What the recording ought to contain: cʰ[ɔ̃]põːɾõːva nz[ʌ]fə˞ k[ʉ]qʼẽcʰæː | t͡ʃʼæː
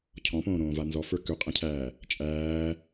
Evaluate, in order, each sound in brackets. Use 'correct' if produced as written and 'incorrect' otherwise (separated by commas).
correct, incorrect, correct